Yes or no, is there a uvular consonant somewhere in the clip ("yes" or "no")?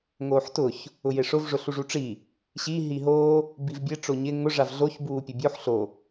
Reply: no